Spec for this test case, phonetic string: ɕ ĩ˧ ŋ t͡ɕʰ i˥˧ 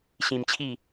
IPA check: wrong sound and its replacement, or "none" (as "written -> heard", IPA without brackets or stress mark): ŋ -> m